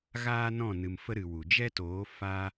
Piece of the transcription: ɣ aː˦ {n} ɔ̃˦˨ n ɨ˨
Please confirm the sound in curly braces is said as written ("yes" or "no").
yes